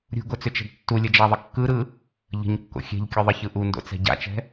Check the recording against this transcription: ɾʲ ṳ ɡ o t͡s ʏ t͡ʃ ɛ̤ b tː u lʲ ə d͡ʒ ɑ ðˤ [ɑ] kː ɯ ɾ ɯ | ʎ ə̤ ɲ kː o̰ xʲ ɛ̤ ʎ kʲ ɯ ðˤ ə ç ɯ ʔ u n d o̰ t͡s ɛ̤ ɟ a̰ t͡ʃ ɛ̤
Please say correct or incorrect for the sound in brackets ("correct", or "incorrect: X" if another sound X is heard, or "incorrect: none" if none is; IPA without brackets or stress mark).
incorrect: ə